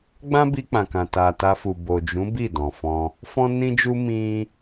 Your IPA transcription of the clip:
ɡ͡b ã˦ b i˧ k͡p ã˨ k ã˨ t a˨ t a˧ f u˨ b o˨ d͡ʒ ũ˨˦ b i˦˨ d ɔ̃˨ f ɔ̃˧ | f ɔ̃˦ n ĩ˦ d͡ʒ u˦ m ĩ˦

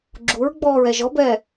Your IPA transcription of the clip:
ɡ͡ǁ u ɹ ɡ͡b ɔː ɹ ɛ ʒ ɔ b ɛː

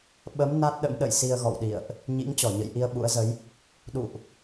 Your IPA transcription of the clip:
ɓ ə˨˦ m n a˦˥ t̚ ɗ ə̰˧˥ m ɗ ə̰˧˨ j s i˧ ə̯ ɣ ɔ̰˧˨ w ɗ ḭ˧˨ ə̯ ʔ | ɲ ḭ˧˥ ŋ t͡ɕ ɔ˧˩ ɲ ə̰˧˨ j ʔ i˧ ə̯ ɓ ṵ˧˥ ə̯ z ə˨˦ j | ɗ ṵ˧˨ ʔ

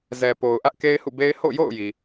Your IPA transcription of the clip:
z ɛ˨ p o˨ ʊ̯ ʔ ä˦ ʔ k e˦ ɪ̯ h ṵ˦˨ b e˦ ɪ̯ h o̰˦˨ j o̰˦˨ ʊ̯ j i˨

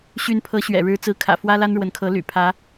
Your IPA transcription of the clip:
ɕ y˧˥ n pʰ ɤ˧˥ ɕ ɥ ɛ̰˨˩ ɻ ɻ̩˧˥ t͡s ɹ̩˧˥ kʰ ä̰˨˩ f w ä˥ l a˥ n ɻ w ə˧˥ n kʰ ɤ˧˥ l y̰˨˩ pʰ ä˧˥

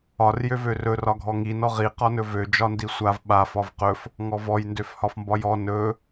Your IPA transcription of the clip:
ɒ r j ø v ø r ɵ r ɒ ɡʱ ɔ ŋ i n ɔ ʁ i q ɒ n ɵ v ø d͡ʒ ɒ n d i sʷ a v ɓ a f ɒ v q ɵ f | ŋ ɔ v ɔ j n d ø f h ɒ f m b ɒ j ɔ n ɵ

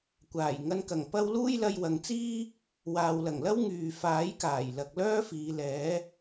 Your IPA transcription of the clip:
kʷ aː˨˩ j ŋ ɐ˧ n k ɐ˨˩ ŋ p ɐ˥ w l uː˥ j l ɐ˧ j w ɐ˨˧ ŋ t͡s iː˥ | w aː˨ w l ɐ˨˩ ŋ l ɐ˥ w ŋ yː˨ f aː˨˥ j k aː˨˩ j l ɐ˨ k̚ l œː˥ f iː˨˧ l ɛː˨˥

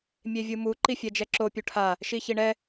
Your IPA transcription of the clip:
mʲ e vʲ u m u ǃ i fʲ ɛ d͡ʒ ɛ ǁ o pʲ u ʈʰ a | ʃ i ç i ɳ ɛ

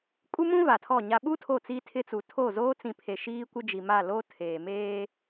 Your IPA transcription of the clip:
kʼ u˦ m ũ˦ v a˨ tʰ ɔ˦˨ ɲ a˨ ɓ u˦ tʰ o˦˨ t͡s i˦ tʰ ɪ˦ t͡s u˨ tʰ o˦˨ z oː˦ t͡s ĩ˨ pʰ e˨ ʃ iː˦ kʷ ɪ˦ d͡ʒ i˨ m a˦˨ l o˦ tʰ eː˨ m eː˦

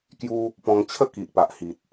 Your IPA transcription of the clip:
k j u˦ | p ɔ̃˧ ŋ t͡ɕʰ ə˥˧ k i˨ ʔ p a˨ ʔ h i˨ t̚

